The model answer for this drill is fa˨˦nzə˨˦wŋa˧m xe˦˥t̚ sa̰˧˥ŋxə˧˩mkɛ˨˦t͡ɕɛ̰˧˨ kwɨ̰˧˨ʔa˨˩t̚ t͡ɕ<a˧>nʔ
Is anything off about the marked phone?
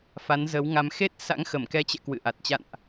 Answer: yes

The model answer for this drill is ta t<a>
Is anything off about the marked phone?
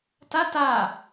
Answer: no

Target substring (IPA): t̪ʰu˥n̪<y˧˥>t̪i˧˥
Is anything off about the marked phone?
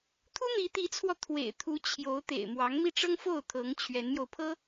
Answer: yes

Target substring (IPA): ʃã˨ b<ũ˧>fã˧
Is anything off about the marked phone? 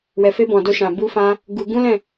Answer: yes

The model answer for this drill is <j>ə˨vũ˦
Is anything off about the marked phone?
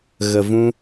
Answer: yes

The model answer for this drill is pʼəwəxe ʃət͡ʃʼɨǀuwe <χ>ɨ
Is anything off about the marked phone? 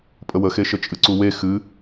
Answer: yes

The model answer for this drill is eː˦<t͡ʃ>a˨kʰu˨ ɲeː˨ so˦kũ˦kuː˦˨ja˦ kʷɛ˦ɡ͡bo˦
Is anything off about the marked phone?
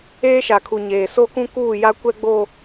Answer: yes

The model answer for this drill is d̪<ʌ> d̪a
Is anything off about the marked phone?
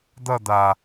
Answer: no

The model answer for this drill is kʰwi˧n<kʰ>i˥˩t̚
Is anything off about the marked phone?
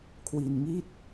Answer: yes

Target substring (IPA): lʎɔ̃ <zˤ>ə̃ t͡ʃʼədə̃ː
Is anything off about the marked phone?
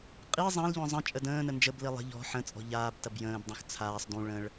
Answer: no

